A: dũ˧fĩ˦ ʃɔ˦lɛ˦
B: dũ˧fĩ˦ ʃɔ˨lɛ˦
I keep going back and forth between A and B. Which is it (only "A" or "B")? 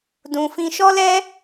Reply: A